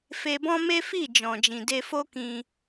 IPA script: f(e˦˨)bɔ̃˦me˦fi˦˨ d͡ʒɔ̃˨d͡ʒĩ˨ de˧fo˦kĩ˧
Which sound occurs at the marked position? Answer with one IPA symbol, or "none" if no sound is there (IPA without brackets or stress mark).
e˧